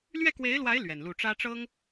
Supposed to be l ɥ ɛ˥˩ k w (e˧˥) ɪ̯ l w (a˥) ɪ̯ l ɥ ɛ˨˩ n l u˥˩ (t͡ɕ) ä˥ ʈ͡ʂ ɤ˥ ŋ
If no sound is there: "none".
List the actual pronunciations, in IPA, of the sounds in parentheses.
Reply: e˧˥, a˧˥, ʈ͡ʂ

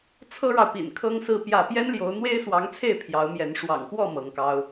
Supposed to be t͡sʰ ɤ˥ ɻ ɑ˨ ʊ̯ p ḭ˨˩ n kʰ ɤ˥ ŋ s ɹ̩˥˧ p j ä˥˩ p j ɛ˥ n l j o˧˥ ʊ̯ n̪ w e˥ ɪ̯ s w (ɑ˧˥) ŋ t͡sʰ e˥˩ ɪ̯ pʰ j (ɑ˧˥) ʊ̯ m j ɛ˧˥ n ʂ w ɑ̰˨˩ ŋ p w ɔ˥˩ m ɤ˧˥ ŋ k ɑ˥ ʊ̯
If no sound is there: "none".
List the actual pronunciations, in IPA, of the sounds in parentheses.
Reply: ɑ˧˥, ɑ˧˥

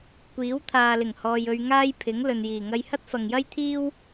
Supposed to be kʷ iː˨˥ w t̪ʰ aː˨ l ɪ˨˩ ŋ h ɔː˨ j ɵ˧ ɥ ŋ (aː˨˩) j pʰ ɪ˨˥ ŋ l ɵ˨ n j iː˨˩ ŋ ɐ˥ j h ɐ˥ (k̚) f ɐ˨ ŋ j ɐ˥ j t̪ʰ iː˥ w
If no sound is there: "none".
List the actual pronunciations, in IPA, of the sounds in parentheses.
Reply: aː˥, t̚

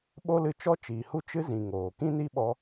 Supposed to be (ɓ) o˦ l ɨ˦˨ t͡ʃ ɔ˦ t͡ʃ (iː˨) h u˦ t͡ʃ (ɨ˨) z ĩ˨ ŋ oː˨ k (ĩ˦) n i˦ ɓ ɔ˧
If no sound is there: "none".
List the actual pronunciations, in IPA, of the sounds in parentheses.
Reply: ɓ, iː˨, ɨ˦, ĩ˦

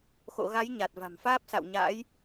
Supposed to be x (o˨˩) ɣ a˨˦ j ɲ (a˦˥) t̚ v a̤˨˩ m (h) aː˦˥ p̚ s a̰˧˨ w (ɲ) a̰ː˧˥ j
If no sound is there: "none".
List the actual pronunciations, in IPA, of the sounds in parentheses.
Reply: o̰˧˨, a˨˩, f, ɲ

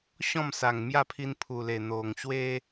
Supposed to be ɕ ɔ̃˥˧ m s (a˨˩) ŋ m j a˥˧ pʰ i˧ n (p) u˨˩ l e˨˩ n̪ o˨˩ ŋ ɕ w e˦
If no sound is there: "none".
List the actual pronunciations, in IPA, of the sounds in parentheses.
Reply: a˨˩, pʰ

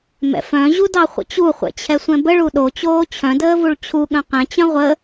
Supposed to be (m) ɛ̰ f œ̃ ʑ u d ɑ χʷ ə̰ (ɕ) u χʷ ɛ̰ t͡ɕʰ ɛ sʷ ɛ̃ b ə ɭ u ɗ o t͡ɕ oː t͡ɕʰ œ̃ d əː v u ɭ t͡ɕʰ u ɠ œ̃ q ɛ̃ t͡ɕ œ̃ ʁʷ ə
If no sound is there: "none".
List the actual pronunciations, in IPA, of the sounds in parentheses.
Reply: m, t͡ɕ

